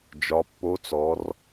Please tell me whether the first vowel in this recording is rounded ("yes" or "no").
yes